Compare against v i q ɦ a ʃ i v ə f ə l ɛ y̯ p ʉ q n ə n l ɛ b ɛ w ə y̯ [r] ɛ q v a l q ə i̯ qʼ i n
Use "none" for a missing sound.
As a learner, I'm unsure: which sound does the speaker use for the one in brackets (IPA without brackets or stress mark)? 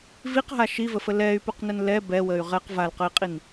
ʁ